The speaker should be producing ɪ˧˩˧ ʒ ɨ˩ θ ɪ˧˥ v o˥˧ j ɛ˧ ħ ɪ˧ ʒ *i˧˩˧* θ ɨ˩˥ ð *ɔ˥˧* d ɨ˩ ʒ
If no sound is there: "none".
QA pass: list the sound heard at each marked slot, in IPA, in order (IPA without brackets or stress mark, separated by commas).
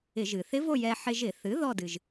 ɪ˧˩˧, ɔ˥˧